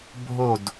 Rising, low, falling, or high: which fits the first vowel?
falling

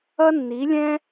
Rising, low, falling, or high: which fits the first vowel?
high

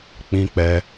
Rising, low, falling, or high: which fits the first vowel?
high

